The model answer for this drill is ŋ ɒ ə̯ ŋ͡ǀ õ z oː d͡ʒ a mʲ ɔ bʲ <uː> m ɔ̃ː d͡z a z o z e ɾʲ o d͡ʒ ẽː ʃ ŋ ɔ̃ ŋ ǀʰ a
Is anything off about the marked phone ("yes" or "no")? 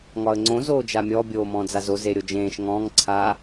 yes